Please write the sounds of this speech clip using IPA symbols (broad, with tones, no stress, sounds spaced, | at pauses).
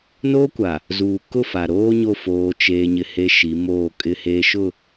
n oː˦ kʷ a˨ | z uː˨ k ʊ˦˨ f a˨ ɾ oː˦ ɲ o˦˨ f oː˦ t͡ʃ eː˦ ɲ ɪ˦ h e˦ ʃ i˨˦ m oː˦˨ kʼ ɪ˦ h eː˦ ʃ ʊ˦˨